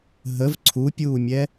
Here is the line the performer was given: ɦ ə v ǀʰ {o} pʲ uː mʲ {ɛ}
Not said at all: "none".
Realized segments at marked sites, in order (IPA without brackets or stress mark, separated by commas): u, ɛ